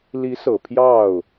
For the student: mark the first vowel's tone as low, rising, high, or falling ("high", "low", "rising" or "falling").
rising